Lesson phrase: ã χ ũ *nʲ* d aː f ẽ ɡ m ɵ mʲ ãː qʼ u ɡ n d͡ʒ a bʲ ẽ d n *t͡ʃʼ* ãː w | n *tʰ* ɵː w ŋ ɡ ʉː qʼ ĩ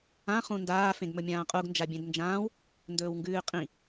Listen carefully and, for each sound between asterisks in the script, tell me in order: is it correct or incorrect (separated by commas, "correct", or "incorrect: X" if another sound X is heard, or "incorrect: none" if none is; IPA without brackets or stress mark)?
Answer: incorrect: n, incorrect: d͡ʒ, incorrect: d